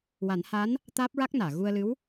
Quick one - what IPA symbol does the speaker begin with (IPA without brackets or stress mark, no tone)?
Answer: w